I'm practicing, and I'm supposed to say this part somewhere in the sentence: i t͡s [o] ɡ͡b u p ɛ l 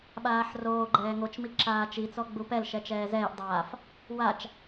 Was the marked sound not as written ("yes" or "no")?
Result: yes